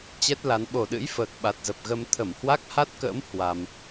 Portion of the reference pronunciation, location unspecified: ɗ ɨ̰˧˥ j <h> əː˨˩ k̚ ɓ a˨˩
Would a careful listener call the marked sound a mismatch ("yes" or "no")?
yes